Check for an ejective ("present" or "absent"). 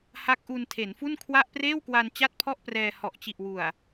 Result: absent